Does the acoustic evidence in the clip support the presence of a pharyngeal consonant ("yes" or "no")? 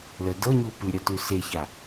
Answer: no